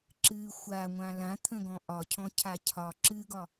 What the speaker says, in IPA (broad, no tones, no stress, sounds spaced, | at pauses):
ǁ ɨ xʷ a ŋʷ ã l ã t̪ʰ ə̃ ɡ ɔ̃ ʔ ɒ cʰ ɔ̃ cʰ a cʰ ɒ ǁ ɨ ɡ ɒ